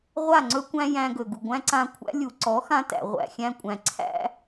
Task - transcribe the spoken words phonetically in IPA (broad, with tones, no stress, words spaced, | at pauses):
ʁʷa˦˨ ŋ͡ǀɵ˦kʷæ̃˦jæ̃˧ɡɵ˨ ɡu˨ɡʷæ̃˦ ǀã˧kʷʰæ̰˦ lʲu˨ǀɔ˨˦xã˧ tæ̰˨ʁʷæ̰˨xʲæ̃˧kʷʼæ̃˨ ǀʰæ̰˦